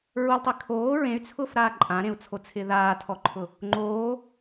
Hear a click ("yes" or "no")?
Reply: yes